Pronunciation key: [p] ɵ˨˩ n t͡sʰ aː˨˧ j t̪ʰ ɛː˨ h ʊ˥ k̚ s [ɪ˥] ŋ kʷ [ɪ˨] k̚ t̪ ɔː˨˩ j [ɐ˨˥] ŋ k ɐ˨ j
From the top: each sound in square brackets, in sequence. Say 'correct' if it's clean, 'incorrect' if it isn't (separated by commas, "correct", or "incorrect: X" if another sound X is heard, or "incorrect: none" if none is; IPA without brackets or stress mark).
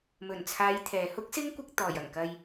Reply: incorrect: m, correct, incorrect: ɪ˧, incorrect: ɐ˨˩